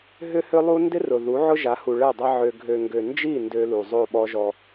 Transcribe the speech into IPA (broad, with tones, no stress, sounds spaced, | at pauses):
ɦ ʏ˦ h ʏ˦ lˠ u˦ n d ɪ˦ r ʊ˨ ð u˨˦ ʕ ʊ˦ ʒ a˨˦ h u˨ ɭ ɛ˦˨ dˤ ɐ˦ ʕ ø˨ ɡʱ ø˨ ŋ ɡ ø˨ n d͡ʒ i˦˨ n d ø˦ l u˨ zˤ o˦˨ ɓ ɔ˦ ʒ ɔ˦